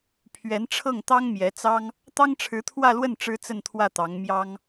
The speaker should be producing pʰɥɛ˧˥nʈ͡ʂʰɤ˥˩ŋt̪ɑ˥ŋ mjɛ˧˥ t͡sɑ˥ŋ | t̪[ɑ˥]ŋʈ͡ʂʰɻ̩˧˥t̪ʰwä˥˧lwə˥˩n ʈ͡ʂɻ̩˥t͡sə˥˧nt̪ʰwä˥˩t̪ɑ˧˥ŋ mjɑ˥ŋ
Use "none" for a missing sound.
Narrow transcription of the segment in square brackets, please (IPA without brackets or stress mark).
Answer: ɑ˥